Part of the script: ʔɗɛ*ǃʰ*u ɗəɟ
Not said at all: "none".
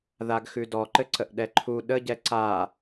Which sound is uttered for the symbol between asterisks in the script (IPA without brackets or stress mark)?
ǃʰ